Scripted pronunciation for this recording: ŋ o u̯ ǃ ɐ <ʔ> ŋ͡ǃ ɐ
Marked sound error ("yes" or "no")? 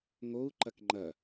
yes